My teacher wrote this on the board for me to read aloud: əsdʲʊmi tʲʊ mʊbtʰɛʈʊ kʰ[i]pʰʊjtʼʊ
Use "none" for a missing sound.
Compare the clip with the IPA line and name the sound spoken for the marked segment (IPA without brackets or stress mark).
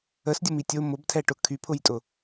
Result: y